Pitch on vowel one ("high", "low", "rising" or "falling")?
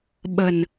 low